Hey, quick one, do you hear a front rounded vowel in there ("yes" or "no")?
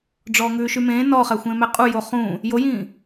yes